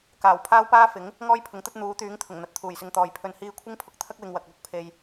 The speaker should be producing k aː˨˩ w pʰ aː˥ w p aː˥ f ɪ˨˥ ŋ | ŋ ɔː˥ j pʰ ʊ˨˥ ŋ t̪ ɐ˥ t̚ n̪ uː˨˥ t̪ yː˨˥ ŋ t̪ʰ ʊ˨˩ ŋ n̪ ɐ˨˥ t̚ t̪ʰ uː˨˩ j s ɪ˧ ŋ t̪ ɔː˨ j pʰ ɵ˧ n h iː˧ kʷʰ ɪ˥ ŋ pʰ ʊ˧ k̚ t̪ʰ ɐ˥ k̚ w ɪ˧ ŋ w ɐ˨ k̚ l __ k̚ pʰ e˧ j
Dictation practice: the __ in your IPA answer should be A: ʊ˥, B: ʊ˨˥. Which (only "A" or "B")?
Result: A